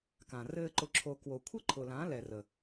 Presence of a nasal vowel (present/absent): present